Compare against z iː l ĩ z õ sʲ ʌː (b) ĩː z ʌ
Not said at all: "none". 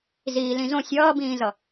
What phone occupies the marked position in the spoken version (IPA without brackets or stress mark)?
b